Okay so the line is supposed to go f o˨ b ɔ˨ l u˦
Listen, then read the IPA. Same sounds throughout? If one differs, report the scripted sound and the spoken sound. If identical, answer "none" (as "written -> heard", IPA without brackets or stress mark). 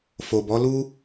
ɔ˨ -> ɔ˨˦